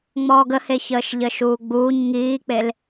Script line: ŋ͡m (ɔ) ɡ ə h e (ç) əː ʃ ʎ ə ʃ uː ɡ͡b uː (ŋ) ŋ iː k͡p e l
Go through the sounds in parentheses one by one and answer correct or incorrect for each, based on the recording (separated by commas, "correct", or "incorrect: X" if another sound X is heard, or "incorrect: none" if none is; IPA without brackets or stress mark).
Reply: incorrect: ɔː, correct, incorrect: ɲ